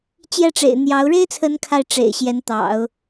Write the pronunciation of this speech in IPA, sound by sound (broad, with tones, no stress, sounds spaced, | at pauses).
t͡ɕ j ɛ˥˩ ʈ͡ʂ ḛ˨˩ ɪ̯ n̪ j ɑ˧˥ ʊ̯ ɻ e˥ ɪ̯ t͡sʰ ə˧˥ n kʰ a˥˩ ɪ̯ ʈ͡ʂ ḛ˨˩ ɪ̯ ɕ j ɛ˧˥ n t̪ ɑ̰˨˩˦ ʊ̯